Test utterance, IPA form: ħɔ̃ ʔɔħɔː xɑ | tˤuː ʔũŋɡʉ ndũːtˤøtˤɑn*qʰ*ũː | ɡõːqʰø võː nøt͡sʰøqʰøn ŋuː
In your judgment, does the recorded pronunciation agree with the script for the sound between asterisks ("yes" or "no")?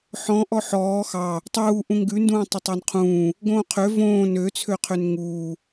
yes